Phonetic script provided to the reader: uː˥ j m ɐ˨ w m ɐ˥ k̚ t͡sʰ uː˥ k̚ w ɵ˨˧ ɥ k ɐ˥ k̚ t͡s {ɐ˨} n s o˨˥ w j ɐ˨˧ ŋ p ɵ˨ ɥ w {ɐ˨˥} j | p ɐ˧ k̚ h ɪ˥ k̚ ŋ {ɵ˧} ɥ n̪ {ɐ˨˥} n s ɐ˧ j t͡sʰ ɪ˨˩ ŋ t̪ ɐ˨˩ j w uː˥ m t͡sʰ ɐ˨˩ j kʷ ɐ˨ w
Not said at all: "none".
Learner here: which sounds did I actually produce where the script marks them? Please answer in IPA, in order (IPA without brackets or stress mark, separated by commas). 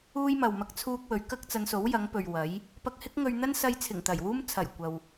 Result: ɐ˨˧, ɐ˨˥, ɵ˧, ɐ˥